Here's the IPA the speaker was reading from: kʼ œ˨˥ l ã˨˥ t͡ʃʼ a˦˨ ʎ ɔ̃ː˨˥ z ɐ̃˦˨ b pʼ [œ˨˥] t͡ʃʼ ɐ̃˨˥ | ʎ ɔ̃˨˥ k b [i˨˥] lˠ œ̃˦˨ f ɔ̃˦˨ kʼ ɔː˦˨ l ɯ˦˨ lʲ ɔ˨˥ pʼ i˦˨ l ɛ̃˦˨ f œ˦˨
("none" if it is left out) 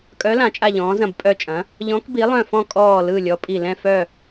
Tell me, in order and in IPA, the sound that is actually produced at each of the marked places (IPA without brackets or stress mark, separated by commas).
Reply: œ˦˨, i˨˥